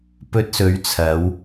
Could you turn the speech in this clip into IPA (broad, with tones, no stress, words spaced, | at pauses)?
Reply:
pɵ˧t̚sɵ˨˧ɥt͡sʰɐ˨˧w